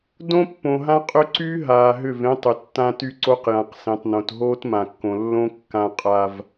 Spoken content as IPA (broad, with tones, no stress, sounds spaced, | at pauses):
d õ˦ pː õ˨ ɦ ã˦ qʼ ʏ˦ ǀ y˦ ɦ aː˨ ɦ ʏ˦˨ v ẽ˦ tˤ ʏ˨ tː ã˦ t y˦ ǀ o˦ q j ã˨ q s ẽ˨ tˤ n õ˨ t ɦ oː˦ t m ã˨ kː õ˨ lː õ˦ kː ã˦ qʼ a˦ v